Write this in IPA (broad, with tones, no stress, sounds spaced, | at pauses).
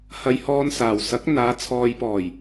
h ɐ˧ j h ɔː˧ n s aː˨ w s ɐ˨˥ k̚ n̪ aː˨˧ t͡sʰ ɔː˨ j p ɔː˨˩ j